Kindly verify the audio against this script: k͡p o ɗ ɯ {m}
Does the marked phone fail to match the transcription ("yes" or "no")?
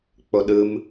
no